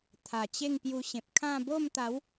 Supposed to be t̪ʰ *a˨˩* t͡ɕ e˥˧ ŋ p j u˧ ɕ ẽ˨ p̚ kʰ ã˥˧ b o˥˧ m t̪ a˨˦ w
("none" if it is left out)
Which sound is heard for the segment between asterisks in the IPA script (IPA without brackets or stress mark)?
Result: a˨˩